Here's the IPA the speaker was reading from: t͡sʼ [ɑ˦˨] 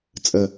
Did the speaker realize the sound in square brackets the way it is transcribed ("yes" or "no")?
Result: no